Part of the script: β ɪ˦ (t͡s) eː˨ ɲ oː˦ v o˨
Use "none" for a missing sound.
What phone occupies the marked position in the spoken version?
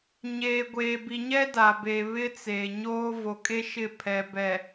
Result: t͡s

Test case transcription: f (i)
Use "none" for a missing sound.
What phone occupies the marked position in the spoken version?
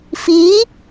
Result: i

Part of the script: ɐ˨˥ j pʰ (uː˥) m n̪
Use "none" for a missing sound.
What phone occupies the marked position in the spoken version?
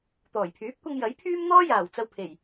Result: yː˥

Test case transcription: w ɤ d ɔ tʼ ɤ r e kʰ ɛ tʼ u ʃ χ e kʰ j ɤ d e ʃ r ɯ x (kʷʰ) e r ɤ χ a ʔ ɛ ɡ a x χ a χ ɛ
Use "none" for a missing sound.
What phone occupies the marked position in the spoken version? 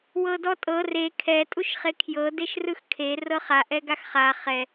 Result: kʰ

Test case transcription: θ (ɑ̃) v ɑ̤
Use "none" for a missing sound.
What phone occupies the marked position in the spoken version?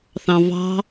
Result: ɑ̃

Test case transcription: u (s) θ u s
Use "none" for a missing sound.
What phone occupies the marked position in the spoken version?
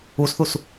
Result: s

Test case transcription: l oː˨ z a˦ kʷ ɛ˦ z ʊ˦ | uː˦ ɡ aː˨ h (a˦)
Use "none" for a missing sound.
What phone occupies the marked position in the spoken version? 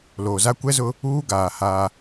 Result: aː˦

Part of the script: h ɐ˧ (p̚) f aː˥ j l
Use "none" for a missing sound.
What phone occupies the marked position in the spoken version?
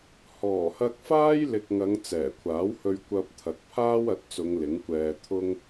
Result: k̚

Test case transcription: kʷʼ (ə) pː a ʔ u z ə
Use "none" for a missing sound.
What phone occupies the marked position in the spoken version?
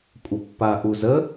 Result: ə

